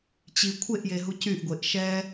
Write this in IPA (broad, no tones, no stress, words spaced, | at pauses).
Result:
t͡ɕi kʷʰeʔjeɦu cyʔɡʷeʔ ʃɛ